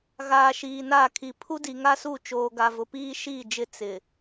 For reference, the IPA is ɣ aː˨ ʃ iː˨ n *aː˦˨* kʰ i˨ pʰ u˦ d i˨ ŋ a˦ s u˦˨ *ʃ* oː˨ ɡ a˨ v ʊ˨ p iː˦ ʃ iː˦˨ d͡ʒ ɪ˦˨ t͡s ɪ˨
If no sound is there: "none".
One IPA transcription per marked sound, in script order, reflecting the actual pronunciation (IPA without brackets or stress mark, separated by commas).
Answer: aː˦˨, t͡ʃ